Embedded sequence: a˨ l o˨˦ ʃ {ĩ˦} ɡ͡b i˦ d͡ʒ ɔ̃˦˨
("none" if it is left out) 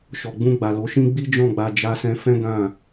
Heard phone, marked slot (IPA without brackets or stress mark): ĩ˦